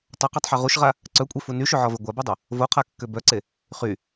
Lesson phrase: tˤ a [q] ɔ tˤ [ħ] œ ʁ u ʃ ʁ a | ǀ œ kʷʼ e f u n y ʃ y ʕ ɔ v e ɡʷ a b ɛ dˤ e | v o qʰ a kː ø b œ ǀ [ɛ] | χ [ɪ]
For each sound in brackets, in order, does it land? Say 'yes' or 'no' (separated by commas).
yes, yes, no, no